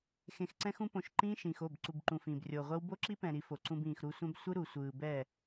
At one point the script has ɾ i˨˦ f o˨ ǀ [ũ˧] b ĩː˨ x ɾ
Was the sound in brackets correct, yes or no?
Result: yes